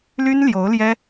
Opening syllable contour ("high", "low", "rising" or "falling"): high